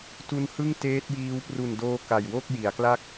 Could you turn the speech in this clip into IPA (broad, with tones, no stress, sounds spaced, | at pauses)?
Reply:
t u˧ n h ɯ˥˩ ŋ t eː˦˥ t̚ j iː˦˥ w p r u˨˩ n d oː˧ k a˨˩ j w o˥˩ k̚ j i˩˦ a̯ k l a˥˩ k̚